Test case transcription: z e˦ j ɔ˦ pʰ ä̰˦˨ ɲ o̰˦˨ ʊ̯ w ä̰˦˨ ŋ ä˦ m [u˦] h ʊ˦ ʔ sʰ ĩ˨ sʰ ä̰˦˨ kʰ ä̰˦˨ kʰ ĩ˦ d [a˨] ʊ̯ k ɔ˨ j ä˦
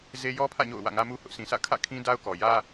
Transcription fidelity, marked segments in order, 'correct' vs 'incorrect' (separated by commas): correct, incorrect